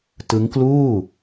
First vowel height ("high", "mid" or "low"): high